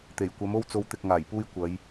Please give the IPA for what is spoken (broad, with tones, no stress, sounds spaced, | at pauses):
t̪ e˨˩ j kʷ ɐ˨˥ m o˥ w t͡s o˧ w t̪ ɪ˨ k̚ ŋ aː˨˩ j p uː˧ j kʷ ɐ˨˧ j